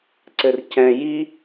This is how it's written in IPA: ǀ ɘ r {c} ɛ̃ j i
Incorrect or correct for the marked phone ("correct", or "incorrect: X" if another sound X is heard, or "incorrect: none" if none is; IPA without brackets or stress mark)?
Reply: correct